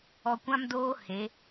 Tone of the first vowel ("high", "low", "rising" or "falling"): low